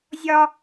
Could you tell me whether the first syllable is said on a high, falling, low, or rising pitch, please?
high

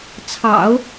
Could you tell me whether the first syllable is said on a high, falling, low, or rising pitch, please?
low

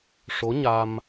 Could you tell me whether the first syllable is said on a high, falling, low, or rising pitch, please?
rising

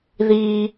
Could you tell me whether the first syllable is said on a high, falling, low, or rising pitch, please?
high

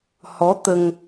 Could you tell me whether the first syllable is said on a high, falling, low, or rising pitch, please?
rising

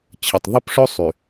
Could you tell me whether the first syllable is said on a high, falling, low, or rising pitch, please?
low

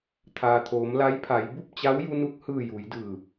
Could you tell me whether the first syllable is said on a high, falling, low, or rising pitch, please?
low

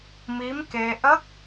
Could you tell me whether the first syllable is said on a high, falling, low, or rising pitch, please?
rising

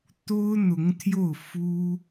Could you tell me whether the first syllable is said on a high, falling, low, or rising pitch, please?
high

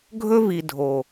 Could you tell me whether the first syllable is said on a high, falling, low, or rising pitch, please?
high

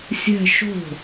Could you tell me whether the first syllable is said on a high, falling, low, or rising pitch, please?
falling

